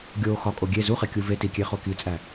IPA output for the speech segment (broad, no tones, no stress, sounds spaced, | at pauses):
ɡʲ o x ɒ kʼ o ɡʲ e z u χ e kʲ u v e t i kʲ e χ o k i t͡sʼ æ